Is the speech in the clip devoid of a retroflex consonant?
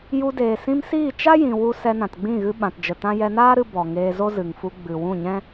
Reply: yes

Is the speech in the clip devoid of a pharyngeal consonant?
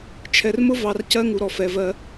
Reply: yes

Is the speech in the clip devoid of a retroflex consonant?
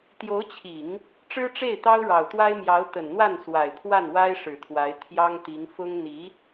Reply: no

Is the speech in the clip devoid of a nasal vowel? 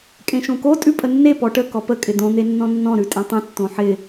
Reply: no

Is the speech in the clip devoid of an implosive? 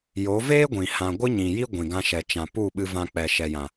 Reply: no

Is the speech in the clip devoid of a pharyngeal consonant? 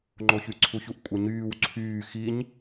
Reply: yes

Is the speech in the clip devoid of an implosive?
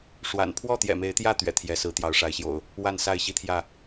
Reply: yes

